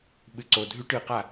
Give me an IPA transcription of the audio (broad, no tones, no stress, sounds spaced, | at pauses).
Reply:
ɓ ɨ ǀ o dʱ ʉ ʈ ɨ q a